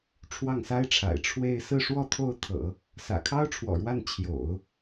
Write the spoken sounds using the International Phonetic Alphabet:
ʈ͡ʂʰ w ɑ˥˩ ŋ s a˥ ɪ̯ ʈ͡ʂʰ a̰˨˩ ɪ̯ ʈ͡ʂʰ w e˥˧ ɪ̯ s ɹ̩˥˧ ʂ w ɔ˥˧ t̪ʰ o˥˩ ʊ̯ t̪ʰ ɤ̰˨˩˦ | s ä̰˨˩ kʰ ɑ˥ ʊ̯ ʈ͡ʂʰ w ɔ̰˨˩ ɻ w a˥˩ n t͡ɕʰ j o̰˨˩˦ ʊ̯

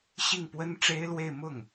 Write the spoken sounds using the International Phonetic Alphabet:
ɕ i˥˩ ŋ p w ə˥ n ʈ͡ʂ e˥ ɪ̯ l w e˥˧ ɪ̯ m ʊ˥˩ ŋ

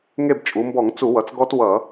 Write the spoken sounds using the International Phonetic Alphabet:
ŋ e˦˨ b t͡ʃʼ u˩˧ m b ɔ˧˩˧ ŋ t͡s u˧˩˧ w ʌ˩˧ t͡s ɡ ɔ˦˥ t w ʌ˧˩˧

